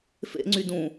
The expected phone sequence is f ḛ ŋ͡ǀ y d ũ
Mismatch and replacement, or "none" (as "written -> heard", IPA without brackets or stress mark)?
none